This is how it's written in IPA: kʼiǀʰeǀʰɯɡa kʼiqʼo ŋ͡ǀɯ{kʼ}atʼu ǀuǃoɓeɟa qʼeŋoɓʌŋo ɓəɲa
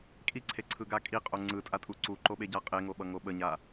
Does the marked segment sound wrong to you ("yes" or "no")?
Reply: yes